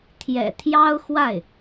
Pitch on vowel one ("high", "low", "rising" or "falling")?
low